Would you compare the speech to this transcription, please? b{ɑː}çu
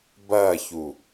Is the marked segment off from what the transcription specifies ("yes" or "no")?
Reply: yes